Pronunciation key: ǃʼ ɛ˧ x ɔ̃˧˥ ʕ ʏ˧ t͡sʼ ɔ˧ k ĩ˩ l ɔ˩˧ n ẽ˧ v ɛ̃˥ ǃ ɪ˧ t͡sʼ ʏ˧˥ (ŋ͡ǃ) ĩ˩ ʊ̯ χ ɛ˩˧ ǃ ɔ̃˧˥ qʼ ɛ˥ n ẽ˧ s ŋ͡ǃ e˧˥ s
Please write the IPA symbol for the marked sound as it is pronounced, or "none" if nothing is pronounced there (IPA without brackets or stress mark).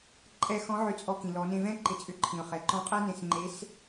ǃʰ